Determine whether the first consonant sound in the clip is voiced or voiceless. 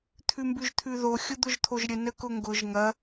voiceless